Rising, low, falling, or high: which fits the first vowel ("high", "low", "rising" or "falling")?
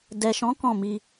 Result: low